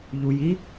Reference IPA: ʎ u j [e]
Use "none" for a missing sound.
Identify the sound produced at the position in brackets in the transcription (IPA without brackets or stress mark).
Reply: i